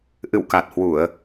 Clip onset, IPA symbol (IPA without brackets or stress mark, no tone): ʔ